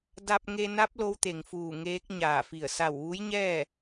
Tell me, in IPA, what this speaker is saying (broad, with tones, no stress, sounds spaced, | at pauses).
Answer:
d a˧ p̚ ŋ e˧ n a˧˥ p̚ l o˧˥ w t̪ e˩ ŋ f uː˧˩ ŋ eː˧˥ k̚ ɲ aː˧˩ f i˧˩ ə̯ s a˧˩ w ʋ u˧˥ j ɲ ɛː˥˨